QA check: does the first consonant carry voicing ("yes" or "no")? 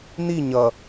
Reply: yes